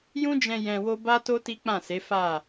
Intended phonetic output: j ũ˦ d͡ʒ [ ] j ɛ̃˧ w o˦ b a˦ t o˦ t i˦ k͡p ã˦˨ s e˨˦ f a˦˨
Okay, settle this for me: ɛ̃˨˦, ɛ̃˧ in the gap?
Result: ɛ̃˧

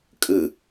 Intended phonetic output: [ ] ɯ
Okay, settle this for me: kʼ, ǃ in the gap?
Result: kʼ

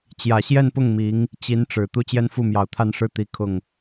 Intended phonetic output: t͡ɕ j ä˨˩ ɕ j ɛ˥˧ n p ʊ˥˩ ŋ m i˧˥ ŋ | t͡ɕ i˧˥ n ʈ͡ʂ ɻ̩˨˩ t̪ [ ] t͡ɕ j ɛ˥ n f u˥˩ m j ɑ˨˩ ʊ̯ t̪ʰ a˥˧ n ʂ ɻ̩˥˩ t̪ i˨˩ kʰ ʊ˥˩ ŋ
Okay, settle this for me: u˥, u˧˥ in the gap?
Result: u˥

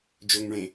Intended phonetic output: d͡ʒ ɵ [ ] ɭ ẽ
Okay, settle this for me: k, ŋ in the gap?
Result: ŋ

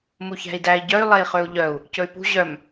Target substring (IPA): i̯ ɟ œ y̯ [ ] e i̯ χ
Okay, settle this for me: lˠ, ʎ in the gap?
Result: lˠ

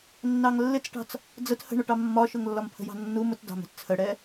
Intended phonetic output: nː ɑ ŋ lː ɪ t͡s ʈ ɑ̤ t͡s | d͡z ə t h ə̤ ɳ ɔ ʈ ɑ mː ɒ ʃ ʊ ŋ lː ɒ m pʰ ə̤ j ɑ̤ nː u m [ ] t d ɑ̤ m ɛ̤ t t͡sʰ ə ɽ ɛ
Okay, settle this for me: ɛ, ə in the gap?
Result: ə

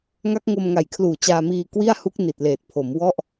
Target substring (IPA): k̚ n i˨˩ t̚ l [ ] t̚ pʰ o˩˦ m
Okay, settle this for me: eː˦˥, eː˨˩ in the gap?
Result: eː˨˩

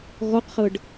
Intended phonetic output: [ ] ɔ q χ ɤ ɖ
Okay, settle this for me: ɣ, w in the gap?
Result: ɣ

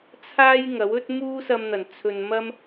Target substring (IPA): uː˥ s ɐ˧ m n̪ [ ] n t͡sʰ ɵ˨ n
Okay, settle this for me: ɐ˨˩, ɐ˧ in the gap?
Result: ɐ˨˩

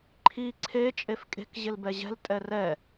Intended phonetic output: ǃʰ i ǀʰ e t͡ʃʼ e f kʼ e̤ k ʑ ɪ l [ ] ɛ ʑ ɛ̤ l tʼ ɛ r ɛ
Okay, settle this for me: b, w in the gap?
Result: b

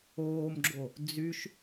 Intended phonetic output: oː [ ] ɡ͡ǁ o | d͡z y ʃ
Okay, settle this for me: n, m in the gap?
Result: m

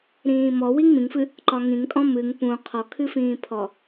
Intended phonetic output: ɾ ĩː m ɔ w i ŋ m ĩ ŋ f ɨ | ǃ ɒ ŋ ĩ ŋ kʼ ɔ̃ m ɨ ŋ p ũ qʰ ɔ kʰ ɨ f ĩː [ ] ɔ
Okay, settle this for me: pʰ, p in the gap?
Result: pʰ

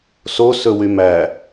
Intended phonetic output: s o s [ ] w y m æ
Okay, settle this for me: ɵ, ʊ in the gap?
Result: ɵ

